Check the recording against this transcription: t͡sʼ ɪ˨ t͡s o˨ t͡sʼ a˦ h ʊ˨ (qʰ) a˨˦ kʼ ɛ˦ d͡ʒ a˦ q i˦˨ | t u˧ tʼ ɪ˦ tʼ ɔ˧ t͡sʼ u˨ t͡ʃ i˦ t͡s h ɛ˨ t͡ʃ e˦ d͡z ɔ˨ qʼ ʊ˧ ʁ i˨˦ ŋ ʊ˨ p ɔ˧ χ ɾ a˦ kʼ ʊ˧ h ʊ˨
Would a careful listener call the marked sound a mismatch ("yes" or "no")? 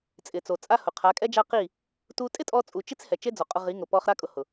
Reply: no